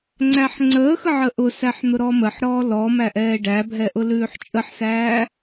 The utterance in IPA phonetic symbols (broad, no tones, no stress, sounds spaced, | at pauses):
ŋ͡ǀ æ ħ ŋ͡ǀ əː x ə ʕ ə ʔ ʊ s æ ħ n̪ ʊ ɾ ɔ m ə ħ ɾ ɔː l ɔ m æ ʔ ɛː ɖ æ bʱ ɛ ʔ ʊ l ʉː ħ t͡ʃʼ ə ħ s æː